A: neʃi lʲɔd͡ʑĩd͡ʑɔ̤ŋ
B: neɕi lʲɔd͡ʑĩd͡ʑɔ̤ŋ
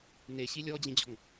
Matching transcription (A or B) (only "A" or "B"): B